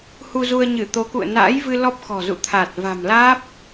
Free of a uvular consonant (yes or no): yes